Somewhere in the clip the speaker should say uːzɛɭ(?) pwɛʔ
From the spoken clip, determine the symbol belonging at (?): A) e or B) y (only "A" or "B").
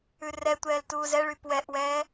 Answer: B